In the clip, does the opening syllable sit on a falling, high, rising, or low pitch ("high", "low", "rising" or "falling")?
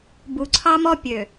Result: low